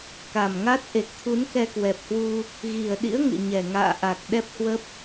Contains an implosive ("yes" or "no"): yes